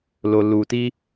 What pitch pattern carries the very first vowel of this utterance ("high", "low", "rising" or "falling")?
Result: low